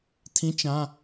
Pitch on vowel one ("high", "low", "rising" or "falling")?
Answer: rising